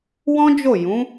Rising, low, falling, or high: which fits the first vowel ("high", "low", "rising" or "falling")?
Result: high